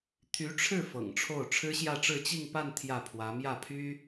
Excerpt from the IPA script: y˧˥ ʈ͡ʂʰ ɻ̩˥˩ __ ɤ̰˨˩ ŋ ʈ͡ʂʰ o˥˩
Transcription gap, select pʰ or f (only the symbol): f